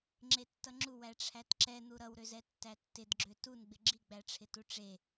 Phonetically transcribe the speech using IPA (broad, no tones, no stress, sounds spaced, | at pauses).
ŋ͡ǁ e tː ʌ ŋ͡ǁ u w æ ʈ͡ʂʰ æ t ǁ ɛ n̪ u ɾ ʌ w ɾ ø z ɛ tː æ tː ɪ d ɡ͡ǁ ø t u n ɡ͡b ɪ ɡ͡ǁ i ɡ͡b æ ʈ͡ʂʰ ɪ t u ʈ͡ʂ e